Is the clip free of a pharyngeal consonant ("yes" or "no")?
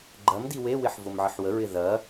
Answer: no